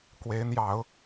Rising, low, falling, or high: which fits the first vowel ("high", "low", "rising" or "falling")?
rising